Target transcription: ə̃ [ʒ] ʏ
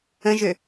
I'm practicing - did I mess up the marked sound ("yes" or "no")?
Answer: no